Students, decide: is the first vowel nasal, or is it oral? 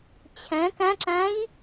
nasal